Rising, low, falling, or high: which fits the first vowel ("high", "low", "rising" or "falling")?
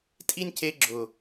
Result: high